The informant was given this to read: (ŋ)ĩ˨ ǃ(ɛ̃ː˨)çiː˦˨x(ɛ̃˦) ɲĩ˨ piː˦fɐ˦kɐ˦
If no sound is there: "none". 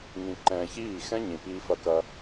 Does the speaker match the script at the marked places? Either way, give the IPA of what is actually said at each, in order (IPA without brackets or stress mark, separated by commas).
ŋ, ɛ̃ː˨, ɛ̃˦